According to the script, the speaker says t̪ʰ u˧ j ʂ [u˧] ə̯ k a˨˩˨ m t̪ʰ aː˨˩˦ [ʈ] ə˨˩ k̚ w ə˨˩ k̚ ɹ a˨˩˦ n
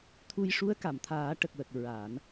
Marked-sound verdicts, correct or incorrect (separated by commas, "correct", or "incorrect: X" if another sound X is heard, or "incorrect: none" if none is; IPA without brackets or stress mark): incorrect: u˧˥, correct